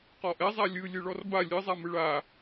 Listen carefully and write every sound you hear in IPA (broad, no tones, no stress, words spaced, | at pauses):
qɔʔɛzˤa lʲɯlʲɯɭɔr ba lʲɯzˤamɯ ɭa